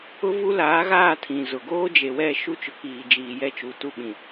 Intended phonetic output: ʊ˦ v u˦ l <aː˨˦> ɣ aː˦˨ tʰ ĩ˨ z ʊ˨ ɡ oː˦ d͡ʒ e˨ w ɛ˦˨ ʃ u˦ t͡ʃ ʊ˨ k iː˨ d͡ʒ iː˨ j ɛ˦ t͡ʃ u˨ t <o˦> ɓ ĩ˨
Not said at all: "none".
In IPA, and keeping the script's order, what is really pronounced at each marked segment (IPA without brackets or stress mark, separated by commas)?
aː˨˦, u˦